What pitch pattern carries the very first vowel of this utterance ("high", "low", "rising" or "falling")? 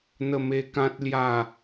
falling